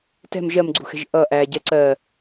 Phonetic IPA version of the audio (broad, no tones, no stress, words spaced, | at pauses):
tɛ̤m ʒɜmɡ͡ǀṳxɛ̤ʒ ʔʌ ʔæ ɟɛǀɜ